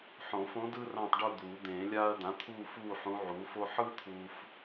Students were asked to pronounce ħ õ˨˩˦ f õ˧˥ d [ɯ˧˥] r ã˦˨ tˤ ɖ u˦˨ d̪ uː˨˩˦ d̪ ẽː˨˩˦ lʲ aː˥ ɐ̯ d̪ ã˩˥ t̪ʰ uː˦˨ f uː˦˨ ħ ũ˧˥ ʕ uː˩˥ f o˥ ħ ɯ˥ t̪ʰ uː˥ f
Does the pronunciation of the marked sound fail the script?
yes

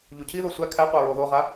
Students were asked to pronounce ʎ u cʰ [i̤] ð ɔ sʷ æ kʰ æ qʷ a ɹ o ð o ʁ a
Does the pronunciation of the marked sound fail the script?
yes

